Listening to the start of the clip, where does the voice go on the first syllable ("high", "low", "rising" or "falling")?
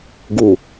low